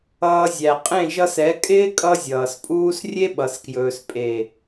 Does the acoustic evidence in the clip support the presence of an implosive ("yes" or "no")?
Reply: yes